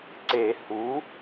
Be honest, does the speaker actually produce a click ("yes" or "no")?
yes